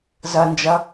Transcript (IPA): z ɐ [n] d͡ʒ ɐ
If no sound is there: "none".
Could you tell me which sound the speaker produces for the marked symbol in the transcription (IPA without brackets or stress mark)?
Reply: n